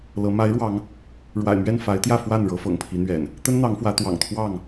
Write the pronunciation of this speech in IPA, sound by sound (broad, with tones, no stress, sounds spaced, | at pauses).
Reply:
l ɤ˨˦ m a˨˦ ɪ̯ ɻ w ɑ˨˦ ŋ | ɻ w a̰˨˩ ɪ̯ m ɥ ɛ˥˨ n f a˨˦ ɪ̯ t̪ j ä˥˨ f w a˥˨ n ɻ ɤ˨˦ f ɤ̰˨˩ ŋ pʰ i˨˦ n̪ ɥ ɛ̰˨˩ n | t̪ ə˦ n n̪ ɑ˨˦ ŋ f w ä˨˦ t̪ w ɑ̰˨˩ ŋ t̪ʰ w ɑ˥˨ ŋ